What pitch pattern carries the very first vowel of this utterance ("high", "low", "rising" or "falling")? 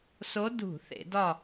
rising